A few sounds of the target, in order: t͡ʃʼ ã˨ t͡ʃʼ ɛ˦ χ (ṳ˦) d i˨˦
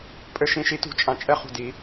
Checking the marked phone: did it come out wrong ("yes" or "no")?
yes